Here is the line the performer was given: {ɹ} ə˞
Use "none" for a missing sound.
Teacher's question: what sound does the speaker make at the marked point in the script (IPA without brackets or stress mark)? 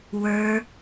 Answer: w